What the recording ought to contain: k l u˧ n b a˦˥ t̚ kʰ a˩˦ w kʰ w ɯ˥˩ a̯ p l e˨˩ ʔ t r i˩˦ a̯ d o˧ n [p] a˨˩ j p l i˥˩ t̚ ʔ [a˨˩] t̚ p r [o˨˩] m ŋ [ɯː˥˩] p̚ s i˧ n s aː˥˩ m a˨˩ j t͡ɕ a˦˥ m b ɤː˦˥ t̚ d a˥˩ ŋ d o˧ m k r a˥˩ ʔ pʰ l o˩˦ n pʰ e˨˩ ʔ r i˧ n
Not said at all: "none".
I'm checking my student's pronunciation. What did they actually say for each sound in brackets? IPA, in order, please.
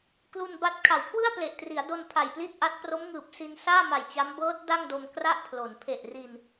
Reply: pʰ, a˦˥, o˦˥, ɯː˨˩

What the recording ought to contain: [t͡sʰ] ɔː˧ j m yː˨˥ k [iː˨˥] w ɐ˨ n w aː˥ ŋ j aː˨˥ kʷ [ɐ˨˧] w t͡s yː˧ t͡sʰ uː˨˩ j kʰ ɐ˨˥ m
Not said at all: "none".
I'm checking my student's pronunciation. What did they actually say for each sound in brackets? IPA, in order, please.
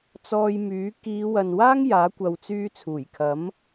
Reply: t͡s, iː˨˧, ɐ˨˧

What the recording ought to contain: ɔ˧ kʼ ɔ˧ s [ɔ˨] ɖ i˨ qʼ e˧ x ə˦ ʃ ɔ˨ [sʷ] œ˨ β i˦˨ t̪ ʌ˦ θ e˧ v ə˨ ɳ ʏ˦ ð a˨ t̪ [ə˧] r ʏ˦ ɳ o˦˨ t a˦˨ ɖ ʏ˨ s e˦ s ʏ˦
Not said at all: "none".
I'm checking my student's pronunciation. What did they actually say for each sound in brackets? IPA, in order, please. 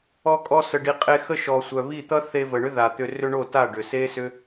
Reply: ə˨, sʷ, ʏ˧

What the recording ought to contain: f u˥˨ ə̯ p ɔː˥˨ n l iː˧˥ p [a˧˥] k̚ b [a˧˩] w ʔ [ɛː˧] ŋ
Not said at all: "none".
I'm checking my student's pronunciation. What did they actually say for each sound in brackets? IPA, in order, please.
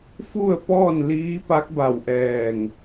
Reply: a˧˥, a˧˩, ɛː˧˩

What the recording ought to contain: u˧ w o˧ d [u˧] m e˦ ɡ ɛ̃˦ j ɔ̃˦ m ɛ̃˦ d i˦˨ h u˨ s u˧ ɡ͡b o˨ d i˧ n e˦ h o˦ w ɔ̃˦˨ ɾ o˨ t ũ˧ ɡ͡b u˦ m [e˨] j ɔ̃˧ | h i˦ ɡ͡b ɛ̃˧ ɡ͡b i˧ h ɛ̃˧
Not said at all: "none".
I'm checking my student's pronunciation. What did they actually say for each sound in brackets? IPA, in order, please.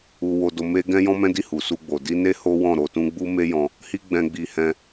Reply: o˧, e˦

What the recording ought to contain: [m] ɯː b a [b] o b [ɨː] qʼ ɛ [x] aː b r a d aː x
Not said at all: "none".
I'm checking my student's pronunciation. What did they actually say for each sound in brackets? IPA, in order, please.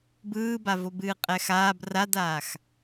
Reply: b, v, ɨː, x

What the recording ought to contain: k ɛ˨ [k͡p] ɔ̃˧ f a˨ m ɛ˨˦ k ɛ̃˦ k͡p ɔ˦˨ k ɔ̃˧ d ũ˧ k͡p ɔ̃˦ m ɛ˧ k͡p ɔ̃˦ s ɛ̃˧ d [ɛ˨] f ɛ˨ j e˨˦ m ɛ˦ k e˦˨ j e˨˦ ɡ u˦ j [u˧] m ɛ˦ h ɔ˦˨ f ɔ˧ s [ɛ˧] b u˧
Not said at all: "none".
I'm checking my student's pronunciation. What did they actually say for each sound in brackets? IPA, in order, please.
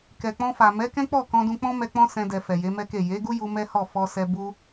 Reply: k͡p, ɛ˨, u˧, ɛ˧

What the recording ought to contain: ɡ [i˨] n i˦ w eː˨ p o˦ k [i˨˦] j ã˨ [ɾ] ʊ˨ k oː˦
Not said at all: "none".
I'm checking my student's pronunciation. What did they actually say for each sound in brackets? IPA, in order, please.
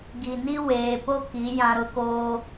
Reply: i˨, i˨˦, ɾ

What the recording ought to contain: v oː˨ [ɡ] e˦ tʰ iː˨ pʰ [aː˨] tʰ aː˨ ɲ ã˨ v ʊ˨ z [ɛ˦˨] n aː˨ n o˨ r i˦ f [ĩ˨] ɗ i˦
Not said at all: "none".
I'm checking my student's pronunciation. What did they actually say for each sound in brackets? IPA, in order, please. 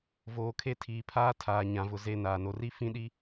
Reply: kʰ, aː˦, e˦˨, ĩ˦

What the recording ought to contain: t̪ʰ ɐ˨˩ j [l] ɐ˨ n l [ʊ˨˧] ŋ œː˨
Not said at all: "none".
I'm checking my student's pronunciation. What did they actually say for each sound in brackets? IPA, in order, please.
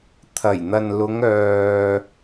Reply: n̪, ʊ˨˧

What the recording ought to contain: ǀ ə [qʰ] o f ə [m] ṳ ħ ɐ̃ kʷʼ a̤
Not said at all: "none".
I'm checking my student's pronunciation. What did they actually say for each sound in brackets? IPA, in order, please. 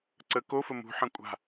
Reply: k, m

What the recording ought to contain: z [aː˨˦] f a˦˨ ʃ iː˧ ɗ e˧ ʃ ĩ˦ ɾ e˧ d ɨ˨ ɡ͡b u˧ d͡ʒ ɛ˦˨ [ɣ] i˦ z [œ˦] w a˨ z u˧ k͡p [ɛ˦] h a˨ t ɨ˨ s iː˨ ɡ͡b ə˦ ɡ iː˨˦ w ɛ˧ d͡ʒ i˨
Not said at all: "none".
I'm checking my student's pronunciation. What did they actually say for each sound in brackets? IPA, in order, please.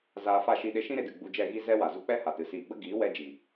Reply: aː˧, ɣ, ɛ˦, ɛ˦

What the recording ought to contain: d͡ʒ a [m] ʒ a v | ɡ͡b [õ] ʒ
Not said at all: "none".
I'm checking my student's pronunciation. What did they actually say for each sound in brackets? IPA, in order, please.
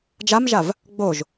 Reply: m, o

